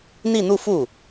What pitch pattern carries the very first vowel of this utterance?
falling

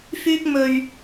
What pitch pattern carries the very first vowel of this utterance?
high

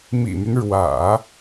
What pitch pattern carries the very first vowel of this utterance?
low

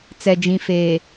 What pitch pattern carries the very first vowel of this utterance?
low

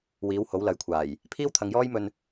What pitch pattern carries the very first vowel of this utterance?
rising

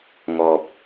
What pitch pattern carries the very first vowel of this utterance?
low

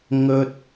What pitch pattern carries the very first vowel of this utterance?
high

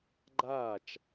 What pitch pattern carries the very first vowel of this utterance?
falling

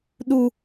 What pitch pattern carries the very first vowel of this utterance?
high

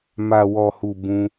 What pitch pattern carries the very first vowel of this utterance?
low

